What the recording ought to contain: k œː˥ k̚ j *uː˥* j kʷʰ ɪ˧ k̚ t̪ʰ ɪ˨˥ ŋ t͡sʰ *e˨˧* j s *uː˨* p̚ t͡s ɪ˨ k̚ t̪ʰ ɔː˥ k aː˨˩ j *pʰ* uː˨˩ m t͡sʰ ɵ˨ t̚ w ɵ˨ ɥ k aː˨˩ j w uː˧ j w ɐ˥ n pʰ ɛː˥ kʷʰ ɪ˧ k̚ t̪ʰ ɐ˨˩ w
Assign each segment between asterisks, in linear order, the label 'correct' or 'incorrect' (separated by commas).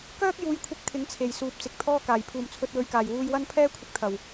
incorrect, incorrect, correct, correct